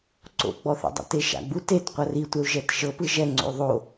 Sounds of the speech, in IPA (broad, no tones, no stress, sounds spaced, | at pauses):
ǀ o̰ ɡ͡b ɔ θ ɛ̰ dˤ a̰ t e ʃ a̰ ɡ͡b u t e t qʷ a r i tʷ ɛ u̯ ʒ ɛ t ʃ ɤ p ɯ ʒ ɛ ŋ͡ǀ o̰ y̯ ðˤ o